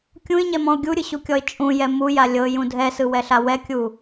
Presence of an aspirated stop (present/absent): absent